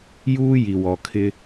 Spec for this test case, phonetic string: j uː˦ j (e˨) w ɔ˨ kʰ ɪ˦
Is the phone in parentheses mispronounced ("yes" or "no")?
yes